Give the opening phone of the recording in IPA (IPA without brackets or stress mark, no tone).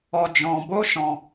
ɔ